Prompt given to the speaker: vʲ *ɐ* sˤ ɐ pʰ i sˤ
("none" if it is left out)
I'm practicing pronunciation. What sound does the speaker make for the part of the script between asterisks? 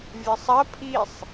ə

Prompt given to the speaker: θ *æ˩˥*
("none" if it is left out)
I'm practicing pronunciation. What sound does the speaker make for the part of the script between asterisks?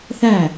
æ˥˨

